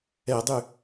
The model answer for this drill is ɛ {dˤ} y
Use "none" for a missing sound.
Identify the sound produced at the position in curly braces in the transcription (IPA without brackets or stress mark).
dˤ